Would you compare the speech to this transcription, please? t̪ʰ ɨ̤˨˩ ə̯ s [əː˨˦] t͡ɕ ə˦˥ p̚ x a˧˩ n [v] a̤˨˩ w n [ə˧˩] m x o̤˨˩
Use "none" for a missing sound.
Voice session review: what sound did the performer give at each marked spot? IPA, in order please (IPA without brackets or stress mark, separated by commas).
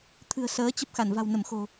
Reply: əː˨˦, v, ə˧˩